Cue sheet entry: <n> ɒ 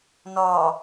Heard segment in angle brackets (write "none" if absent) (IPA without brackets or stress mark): n